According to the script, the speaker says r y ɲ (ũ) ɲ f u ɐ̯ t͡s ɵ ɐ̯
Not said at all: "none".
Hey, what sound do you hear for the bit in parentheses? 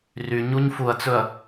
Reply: u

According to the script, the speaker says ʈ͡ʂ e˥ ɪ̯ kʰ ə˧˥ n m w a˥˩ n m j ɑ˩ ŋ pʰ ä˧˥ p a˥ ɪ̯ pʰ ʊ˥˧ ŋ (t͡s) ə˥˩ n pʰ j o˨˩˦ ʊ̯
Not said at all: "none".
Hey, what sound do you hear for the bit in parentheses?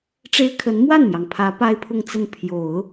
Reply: t͡s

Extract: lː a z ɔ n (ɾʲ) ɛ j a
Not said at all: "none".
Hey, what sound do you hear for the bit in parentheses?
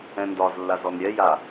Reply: ɾʲ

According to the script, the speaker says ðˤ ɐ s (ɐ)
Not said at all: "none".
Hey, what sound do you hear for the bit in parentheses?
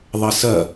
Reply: ɐ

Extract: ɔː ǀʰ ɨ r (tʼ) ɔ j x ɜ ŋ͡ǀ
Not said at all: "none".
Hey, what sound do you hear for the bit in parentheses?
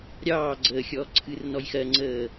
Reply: n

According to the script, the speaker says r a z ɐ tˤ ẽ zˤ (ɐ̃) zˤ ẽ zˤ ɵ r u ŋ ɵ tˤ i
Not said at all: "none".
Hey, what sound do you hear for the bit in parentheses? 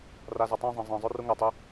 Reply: ɐ̃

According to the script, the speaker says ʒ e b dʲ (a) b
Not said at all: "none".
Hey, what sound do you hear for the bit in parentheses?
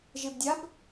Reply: a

